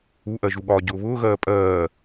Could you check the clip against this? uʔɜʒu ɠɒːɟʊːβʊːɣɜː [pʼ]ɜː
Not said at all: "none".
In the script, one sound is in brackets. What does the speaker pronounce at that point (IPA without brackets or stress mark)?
pʼ